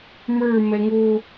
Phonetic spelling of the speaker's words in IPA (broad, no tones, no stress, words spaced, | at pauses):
mə˞ mɛŋo